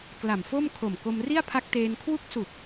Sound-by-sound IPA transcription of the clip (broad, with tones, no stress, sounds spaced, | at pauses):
k l a˨˩ m f o˥˩ m kʰ o˨˩ m k o˧ m r i˥˩ a̯ pʰ a˦˥ k̚ t eː˧ n kʰ w u˦˥ k̚ s u˨˩ k̚